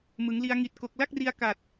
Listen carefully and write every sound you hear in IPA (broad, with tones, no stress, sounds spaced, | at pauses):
m ɯ˩˦ ŋ l i˧ a̯ ŋ i˨˩ t̚ k o˨˩ k̚ l a˥˩ k̚ r i˧ a̯ k a˨˩ t̚